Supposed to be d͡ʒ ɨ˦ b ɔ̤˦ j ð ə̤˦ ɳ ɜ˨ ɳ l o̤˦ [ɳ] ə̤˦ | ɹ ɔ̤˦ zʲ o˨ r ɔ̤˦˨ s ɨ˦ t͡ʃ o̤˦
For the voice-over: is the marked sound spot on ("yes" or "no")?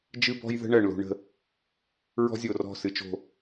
yes